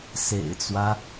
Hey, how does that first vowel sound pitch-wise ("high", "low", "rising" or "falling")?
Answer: low